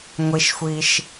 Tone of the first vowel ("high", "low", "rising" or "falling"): low